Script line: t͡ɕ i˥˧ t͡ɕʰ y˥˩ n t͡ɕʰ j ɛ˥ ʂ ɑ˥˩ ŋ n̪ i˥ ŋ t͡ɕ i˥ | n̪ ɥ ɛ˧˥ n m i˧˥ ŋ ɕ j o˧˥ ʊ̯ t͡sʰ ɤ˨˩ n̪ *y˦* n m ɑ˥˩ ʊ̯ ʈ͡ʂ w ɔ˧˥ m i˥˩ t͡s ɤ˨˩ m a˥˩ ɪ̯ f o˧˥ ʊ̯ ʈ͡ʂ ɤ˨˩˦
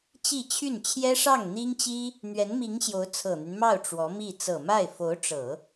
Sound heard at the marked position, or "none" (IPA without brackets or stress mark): y˦